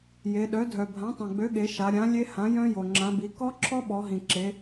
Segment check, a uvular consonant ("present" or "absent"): absent